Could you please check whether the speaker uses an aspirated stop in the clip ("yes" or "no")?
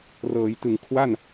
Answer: yes